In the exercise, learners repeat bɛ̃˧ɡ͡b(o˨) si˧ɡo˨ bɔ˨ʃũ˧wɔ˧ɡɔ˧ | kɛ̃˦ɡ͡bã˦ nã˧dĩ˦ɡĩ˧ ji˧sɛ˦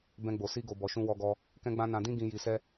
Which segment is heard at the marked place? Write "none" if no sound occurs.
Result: o˨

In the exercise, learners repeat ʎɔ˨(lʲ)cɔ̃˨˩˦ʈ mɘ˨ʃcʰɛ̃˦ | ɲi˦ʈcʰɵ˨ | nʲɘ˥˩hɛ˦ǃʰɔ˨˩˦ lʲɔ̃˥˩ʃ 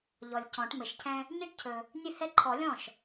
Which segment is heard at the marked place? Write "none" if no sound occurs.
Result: lʲ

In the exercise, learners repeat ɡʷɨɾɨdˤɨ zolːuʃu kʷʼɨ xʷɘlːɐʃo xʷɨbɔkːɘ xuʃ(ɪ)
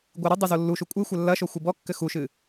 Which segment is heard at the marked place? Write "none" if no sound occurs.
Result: ɨ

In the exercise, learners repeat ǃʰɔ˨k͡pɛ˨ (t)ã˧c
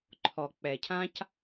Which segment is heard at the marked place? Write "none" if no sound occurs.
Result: cʰ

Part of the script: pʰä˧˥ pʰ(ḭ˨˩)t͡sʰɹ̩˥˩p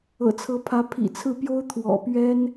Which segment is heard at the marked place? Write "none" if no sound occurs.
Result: ḭ˨˩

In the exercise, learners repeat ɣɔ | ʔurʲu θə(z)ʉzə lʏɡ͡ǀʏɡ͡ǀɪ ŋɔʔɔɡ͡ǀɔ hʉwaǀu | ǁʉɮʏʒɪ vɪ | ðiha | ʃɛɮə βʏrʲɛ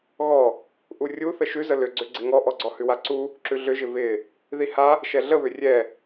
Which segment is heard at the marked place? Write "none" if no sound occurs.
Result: ʃ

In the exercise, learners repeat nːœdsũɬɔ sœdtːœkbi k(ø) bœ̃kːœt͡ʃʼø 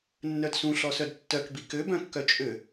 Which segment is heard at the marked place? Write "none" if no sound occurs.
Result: ø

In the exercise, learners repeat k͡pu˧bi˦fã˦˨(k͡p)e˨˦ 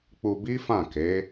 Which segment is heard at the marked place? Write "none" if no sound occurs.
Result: k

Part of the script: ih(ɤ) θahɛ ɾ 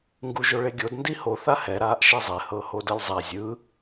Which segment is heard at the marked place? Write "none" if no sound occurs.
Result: o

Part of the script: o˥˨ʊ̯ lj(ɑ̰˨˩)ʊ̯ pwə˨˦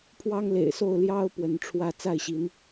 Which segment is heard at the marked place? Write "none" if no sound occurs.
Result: ɑ˦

